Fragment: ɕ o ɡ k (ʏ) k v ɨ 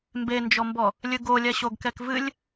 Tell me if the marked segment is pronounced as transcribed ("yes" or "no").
no